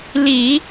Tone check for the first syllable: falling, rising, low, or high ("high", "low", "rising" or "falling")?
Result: low